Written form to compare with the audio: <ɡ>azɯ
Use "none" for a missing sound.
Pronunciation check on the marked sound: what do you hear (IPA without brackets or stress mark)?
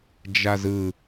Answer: d͡ʒ